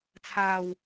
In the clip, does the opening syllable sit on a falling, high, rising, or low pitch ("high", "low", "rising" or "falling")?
low